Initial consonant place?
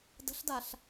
alveolar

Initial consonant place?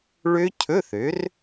retroflex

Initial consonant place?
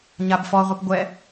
palatal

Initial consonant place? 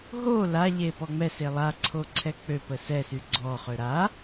glottal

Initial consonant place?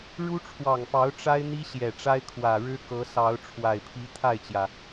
retroflex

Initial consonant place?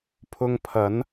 labial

